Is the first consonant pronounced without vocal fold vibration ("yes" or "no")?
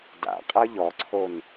no